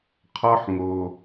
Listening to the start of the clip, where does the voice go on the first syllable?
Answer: high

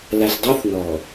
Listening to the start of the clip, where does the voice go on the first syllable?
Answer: low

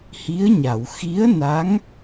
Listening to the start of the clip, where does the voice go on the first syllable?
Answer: rising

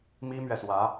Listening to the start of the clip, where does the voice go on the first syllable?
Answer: high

